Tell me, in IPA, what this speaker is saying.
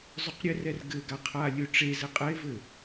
zˤ ɵ q ɾʲ ɘ r ɛ r ɡ ɘ ɡ a qʰ a lʲ ɵ ʈ͡ʂ e z ɘ qʼ ɛ e̯ v ɘ

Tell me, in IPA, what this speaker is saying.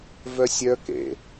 v œ sʲ œ k ḛ

